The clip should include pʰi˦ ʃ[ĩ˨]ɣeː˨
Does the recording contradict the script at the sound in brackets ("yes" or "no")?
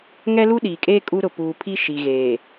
yes